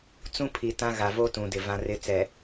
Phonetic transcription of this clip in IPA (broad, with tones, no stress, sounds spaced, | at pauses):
t͡s ũ˦ pʰ i˨ t ã˦ ɣ a˨ v o˦ t ũ˨ d ɪ˨ v ã˦ r ɪ˦ t͡s ɛ˨